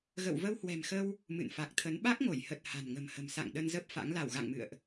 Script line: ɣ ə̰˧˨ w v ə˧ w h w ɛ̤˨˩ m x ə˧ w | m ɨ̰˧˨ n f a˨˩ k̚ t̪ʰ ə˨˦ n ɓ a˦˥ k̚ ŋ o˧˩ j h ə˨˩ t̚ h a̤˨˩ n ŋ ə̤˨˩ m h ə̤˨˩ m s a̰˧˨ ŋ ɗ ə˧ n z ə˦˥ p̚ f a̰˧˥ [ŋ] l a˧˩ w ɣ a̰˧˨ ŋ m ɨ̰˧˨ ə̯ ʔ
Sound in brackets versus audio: correct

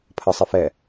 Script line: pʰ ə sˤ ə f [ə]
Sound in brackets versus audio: incorrect: ɛ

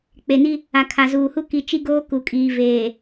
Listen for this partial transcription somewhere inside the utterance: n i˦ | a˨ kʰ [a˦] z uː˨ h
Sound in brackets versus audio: incorrect: a˨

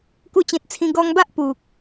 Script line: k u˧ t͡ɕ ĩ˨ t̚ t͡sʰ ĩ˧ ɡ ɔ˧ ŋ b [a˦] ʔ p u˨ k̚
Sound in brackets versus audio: correct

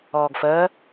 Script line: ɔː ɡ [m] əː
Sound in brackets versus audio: incorrect: f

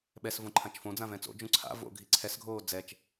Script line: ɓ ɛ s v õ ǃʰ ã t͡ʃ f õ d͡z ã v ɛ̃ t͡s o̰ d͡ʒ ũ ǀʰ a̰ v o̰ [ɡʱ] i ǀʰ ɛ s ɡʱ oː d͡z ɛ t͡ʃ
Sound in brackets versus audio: correct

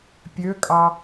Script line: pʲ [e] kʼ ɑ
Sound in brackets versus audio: incorrect: ø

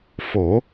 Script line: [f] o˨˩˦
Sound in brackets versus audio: correct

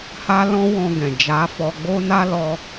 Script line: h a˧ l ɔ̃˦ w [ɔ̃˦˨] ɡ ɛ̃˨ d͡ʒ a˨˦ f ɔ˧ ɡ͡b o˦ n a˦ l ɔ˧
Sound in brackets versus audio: incorrect: ɔ̃˧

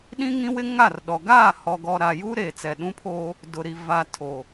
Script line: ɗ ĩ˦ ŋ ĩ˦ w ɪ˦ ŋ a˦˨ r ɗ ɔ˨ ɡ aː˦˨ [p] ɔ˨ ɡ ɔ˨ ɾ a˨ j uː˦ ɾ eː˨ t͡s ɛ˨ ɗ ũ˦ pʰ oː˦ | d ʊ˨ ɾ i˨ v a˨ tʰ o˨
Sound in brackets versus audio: incorrect: h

